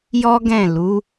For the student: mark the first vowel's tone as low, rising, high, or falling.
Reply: high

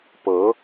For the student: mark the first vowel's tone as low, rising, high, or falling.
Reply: rising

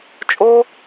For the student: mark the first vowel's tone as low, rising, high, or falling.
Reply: high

